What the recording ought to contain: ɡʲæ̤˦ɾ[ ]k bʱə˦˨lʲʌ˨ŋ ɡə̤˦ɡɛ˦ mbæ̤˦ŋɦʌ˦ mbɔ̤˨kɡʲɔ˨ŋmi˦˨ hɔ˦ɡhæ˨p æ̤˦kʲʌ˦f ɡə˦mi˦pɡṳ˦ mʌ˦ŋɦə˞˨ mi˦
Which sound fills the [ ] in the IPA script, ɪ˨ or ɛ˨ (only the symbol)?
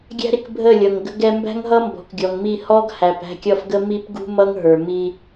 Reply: ɪ˨